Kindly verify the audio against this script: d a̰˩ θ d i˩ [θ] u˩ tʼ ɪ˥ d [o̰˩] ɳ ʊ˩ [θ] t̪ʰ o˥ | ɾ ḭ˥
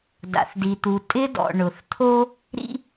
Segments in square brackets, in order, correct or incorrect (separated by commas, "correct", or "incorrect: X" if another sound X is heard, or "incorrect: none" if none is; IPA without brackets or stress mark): incorrect: t̪, incorrect: ɔ̰˩, correct